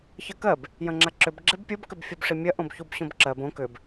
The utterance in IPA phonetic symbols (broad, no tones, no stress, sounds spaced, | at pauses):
ç ɐ k ɜ b | j ɐ̃ ŋ͡ǁ a ǁ ʏ b ɡ͡ǁ e b pʲ o b k ʏ b fʲ u b ʂ i mʲ ɐ ʔ õ b ç u b ɕ õ b ǁ ɜ b õ k ʏ b